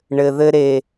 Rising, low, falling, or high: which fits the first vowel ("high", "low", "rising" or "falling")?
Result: low